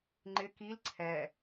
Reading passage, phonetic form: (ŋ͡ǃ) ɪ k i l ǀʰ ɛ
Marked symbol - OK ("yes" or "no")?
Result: yes